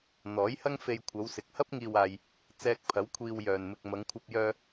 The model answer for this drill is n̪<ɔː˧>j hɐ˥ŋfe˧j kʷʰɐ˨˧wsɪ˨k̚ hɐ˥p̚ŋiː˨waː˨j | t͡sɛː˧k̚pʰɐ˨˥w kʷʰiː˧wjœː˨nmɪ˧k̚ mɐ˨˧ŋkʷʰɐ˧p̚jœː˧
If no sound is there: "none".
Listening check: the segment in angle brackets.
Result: ɔː˨˥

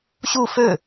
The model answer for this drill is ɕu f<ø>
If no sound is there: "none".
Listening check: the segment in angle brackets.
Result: ø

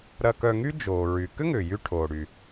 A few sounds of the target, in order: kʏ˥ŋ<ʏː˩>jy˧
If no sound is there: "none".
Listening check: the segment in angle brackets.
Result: ʏː˩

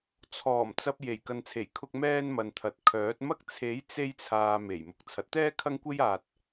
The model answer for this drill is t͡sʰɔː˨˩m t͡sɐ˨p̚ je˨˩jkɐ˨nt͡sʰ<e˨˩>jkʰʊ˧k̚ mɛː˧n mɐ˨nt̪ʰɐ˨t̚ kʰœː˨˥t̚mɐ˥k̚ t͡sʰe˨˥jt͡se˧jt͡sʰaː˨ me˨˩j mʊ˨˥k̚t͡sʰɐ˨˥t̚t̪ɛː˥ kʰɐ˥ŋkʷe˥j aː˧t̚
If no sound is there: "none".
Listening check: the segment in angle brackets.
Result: e˨˩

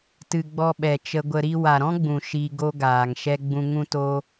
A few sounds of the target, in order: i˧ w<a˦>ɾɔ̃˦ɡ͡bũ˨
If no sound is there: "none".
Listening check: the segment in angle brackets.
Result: a˨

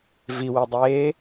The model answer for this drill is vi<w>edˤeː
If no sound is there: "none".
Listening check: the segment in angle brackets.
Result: w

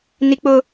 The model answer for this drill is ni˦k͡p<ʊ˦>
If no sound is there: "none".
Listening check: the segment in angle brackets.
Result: ʊ˦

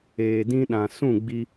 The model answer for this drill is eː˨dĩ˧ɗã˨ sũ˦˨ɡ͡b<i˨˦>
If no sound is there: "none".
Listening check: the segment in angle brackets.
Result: i˧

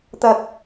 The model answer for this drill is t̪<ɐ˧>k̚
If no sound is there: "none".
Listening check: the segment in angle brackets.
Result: ɐ˧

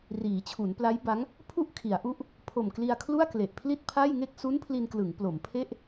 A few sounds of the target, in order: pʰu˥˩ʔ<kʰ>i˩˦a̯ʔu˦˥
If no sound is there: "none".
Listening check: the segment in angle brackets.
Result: kʰ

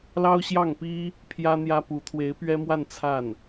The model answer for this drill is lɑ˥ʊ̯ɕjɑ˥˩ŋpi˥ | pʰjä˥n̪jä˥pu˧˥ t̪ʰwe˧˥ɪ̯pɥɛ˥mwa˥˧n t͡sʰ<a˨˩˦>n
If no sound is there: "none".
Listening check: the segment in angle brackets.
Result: a˥˩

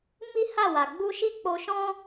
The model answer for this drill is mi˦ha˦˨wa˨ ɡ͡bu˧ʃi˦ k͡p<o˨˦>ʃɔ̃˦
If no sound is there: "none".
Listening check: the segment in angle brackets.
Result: o˧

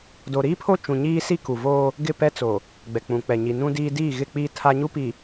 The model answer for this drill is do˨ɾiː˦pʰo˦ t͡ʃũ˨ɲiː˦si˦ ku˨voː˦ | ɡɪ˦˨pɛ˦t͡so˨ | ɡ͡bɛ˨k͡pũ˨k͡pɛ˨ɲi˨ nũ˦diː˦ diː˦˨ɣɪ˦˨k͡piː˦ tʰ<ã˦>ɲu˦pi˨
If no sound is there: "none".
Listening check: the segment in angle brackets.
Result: a˦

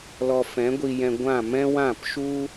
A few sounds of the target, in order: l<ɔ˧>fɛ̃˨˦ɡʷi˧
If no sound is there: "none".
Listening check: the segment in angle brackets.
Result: ɔ˧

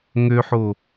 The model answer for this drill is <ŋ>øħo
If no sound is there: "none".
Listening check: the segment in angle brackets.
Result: ŋ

